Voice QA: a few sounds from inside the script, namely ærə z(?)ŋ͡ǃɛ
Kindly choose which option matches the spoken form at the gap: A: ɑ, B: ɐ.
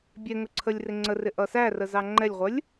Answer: A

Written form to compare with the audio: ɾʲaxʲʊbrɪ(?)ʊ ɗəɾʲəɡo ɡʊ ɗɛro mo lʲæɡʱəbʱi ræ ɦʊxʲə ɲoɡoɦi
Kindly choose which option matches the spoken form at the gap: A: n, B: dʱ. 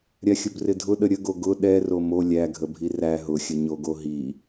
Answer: B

